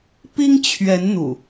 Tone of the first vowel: high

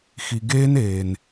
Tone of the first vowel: low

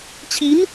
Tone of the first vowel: rising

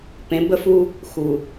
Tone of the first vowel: rising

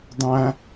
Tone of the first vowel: high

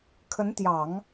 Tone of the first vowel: rising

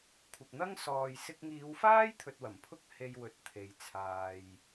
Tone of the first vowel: low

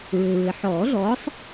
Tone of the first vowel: low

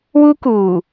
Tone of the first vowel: high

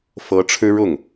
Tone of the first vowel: rising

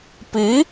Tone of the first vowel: rising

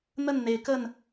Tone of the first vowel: falling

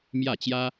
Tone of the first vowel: falling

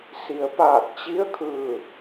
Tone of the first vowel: low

